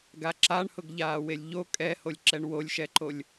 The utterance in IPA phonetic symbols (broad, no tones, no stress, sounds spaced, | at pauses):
ɡ a ǁ a ɳ h ʊ ɡ ʎ aː w e lʲ ʎ o kʼ ɛ h o lʲ ǁ ɛ ɳ w o lʲ ʃ ɛ ǃ o lʲ